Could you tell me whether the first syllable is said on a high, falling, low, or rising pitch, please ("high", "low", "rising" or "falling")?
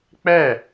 falling